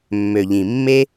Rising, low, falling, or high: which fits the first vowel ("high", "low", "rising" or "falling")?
low